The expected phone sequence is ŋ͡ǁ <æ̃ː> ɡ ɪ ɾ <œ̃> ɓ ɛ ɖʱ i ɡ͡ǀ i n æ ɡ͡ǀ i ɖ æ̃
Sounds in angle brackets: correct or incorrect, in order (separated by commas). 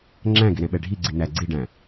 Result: incorrect, incorrect